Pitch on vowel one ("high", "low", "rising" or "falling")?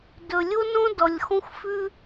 low